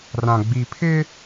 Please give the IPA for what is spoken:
r ã˨ ɡ͡b i˨ pʰ ɪ˦

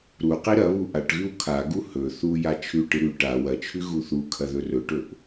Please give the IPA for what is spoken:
ɾ u q i ɾ ɐ β u ʔ a ʈ ɣ ʉ w kʰ a ɡ u h ɵ θ u j a t͡ʃʰ ʉ ʈ ɨ ɾ ʉ ʈ a w ɐ t͡ʃʰ ʉ ɣ u θ u kʰ ɐ ð ɵ r ɵ ʈ ɵ ʔ

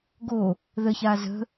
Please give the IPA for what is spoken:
ɡ o | ð ə ç a z ə̤

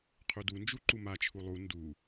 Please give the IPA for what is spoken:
qʰ u d u n d͡ʒ u ǃ u m a t͡ʃʰ u lˠ u n d u

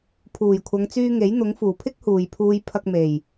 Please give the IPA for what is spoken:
pʰ uː˨˩ j kʷʰ ɐ˨˧ ŋ t͡s yː˧ ŋ e˨˥ j n̪ ʊ˨˥ ŋ f uː˨˩ pʰ ɪ˥ k̚ h uː˨ j pʰ uː˧ j pʰ ɐ˧ k̚ m e˨˩ j

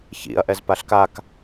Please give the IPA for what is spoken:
ç ḭ ɐ̯ ʔ ɛ z p a ɬ k a k

